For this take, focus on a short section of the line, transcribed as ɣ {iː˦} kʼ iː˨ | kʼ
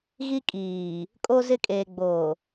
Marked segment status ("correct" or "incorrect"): incorrect